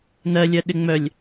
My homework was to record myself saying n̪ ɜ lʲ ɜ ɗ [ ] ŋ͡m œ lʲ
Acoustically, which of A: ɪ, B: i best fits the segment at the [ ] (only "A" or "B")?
A